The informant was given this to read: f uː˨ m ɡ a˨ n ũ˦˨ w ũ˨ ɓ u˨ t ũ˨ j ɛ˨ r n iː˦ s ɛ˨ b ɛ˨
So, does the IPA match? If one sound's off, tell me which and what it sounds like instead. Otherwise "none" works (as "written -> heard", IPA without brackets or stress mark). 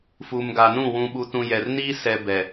none